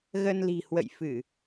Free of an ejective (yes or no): yes